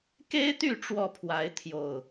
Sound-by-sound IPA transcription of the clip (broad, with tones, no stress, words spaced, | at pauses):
ke˦ɪ̯t̪y˥˨ ʈ͡ʂwɔ˥˨pʰwa˨˦ɪ̯ t̪ʰjo˨˩ʊ̯